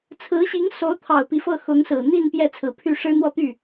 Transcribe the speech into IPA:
t͡sʰɹ̩˧˥ɕi˧˥ŋso˧˥ʊ̯ t̪ʰɑ˨˩ʊ̯pi˦fɤ˥˩ xʊ˧˥ŋsɹ̩˨˩ n̪i˥˧n pjɛ˥˩t͡sʰɹ̩˨˩pʰy˥˩ʂɻ̩˥ n̪wɔ˥˧t̪y˥˩

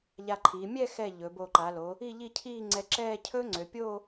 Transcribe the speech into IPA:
ʎa˧ǃʰi˩˧ mʲɛ˥˧xɛ˧˩ ʎɵ˩˧bo˧˩ǃa˩˧lo˩˧ | i˥˧ʎi˥˧cʰiː˥˧ ŋ͡ǀɛ˧ǁɛː˥˧ cʰɵː˥ŋ͡ǀø˩˧pʲoː˥˧

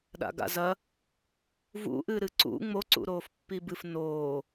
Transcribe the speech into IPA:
ɗa̰ɡa̰zɐ | vṵʔɨɾɨ ǀṵ ŋ͡moǀṵɾoːf pːibɨf noː

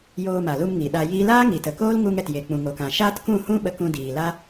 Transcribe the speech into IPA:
joː˧ma˨lu˧m ŋi˨ɗa˧jiː˦ laː˦ŋi˨tə˨ koː˦lŋu˧ŋ ɛ˨tje˨k͡pũ˨ŋoː˨k ã˨ ʃaː˦tkũ˦˨ hũ˦ ɓə˧kũ˧diː˨ la˦

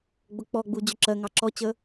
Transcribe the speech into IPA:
ɡ͡bʊk͡pɔɡ͡bu d͡ʑʊǁɜŋɑ ǁɔt͡ɕə

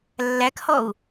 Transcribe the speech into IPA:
lːækhɔu̯

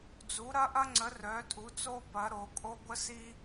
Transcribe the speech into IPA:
d͡zu˨˦ɾɐ˦ʔɐ˦ŋ͡ǀə˨˦ rœ˨˦tʼu˨˦t͡so˦pɐ˨˦ ɾo˨˦kʼo˦ ɡʷə˦si˦

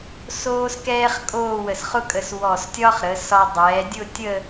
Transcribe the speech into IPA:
soː˥skɛː˥χkʼoː˥˧wə˧˩s χʊ˥kʼə˧s wɔ˧˩stʲɒ˥χɾə˩˧ sɒ˧ dˤɛː˩˧ dʲʊ˥˧tʲə˥˧

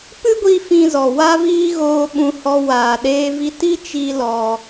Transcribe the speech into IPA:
pɨ˦ɡʷi˧ fĩ˧zɔ˨ wa˦viː˦ ɣoː˧ ɓũ˧hɔ˧ waː˨ɗeː˧vi˧ ti˦ t͡ʃi˦lɔ˧

